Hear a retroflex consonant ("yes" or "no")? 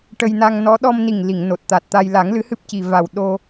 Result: yes